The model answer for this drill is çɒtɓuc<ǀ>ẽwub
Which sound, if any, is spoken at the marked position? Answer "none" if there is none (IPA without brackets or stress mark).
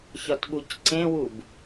ǀ